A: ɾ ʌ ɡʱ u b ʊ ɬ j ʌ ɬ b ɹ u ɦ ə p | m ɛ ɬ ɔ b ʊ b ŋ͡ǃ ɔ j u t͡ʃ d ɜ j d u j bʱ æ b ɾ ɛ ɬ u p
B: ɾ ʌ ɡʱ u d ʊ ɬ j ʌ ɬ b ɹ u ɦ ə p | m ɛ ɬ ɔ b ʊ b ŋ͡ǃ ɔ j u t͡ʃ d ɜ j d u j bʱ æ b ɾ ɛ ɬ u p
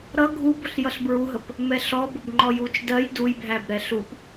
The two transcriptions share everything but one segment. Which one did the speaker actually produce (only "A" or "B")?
A